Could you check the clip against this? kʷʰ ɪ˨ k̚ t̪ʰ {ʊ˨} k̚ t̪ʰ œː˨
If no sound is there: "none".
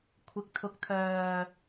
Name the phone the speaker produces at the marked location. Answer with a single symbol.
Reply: ʊ˨˥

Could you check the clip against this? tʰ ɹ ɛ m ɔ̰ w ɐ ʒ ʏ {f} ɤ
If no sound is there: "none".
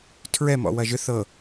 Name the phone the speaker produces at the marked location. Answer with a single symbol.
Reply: θ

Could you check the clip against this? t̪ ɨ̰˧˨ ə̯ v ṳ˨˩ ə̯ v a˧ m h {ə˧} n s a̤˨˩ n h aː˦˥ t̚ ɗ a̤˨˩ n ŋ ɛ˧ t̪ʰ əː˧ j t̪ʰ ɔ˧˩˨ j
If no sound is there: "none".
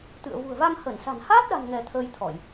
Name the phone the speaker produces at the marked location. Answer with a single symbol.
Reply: ə˧˩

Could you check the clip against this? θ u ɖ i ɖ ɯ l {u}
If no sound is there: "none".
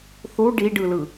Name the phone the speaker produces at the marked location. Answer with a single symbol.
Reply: ɯ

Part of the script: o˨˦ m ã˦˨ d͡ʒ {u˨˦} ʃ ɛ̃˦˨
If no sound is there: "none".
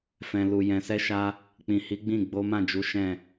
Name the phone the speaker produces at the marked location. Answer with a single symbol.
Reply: u˨˦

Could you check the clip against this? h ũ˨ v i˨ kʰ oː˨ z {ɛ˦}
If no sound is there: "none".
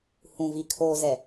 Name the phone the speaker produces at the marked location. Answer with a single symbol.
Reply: ɛ˨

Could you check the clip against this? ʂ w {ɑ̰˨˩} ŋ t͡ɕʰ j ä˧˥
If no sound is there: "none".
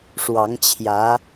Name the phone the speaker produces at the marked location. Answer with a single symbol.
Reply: ɑ˧˥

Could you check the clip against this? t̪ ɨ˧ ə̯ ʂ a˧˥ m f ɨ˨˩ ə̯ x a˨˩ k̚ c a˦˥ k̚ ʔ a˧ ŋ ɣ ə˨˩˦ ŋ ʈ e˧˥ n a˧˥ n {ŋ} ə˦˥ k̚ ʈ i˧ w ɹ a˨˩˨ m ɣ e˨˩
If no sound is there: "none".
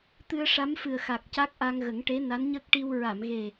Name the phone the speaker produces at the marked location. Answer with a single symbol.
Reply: ɲ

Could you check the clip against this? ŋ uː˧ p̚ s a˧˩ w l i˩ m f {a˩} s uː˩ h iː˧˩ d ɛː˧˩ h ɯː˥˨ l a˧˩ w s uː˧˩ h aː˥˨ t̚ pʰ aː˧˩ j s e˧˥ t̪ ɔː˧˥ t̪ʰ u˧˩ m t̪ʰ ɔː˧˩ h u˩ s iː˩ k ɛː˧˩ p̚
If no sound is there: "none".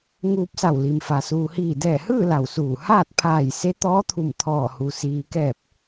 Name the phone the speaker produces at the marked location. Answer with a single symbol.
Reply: a˩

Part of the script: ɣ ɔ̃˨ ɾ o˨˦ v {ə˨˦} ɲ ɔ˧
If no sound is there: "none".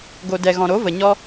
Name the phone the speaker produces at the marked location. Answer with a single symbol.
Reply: ə˨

